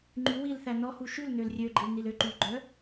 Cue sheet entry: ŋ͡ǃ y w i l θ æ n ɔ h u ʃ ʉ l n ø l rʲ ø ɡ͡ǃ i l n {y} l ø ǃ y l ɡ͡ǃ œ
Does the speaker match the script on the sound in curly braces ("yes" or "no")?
no